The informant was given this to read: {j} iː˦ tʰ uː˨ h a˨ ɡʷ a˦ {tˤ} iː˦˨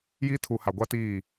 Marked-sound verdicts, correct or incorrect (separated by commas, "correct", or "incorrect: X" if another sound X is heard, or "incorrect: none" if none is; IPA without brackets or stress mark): correct, incorrect: t